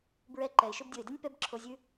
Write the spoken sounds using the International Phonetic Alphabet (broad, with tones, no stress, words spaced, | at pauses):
bɹɛ˧ǃɛ˨ɪ̯ ʃo˧bdʲɤ˨ɪ̯dɛ˦nʲ pɛ˦bǁʰo˧zʲʉ˦